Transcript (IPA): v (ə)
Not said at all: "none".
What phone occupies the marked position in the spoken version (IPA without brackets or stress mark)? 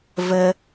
ə